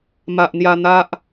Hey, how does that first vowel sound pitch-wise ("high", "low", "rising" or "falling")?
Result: low